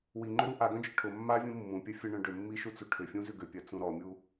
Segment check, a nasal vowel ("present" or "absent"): present